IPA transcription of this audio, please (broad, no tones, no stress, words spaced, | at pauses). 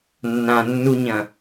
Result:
nːãnːuɲɐ̃